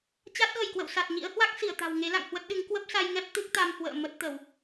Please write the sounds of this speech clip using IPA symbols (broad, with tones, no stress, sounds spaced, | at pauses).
t͡ɕ a˦˥ t̚ ɣ ə˧˩ j k w ə̰˧˨ w s a˨˩ t̚ ɲ ḭ˧˥ ə̯ h w a˦˥ k̚ s i˧˩ ə̯ t̪ a̤˨˩ w ŋ e˨˦ l a̰˧˨ ŋ h w ə˦˥ t̚ ɗ ɨ˨˦ ŋ k w ə˦˥ p̚ s a˧ j ŋ ɛ˦˥ p̚ t̪ ɨ˦˥ k̚ t̪ a˧ m h w ə̰ː˧˨ m ə˦˥ t̚ t̪ ə˧˩˨ w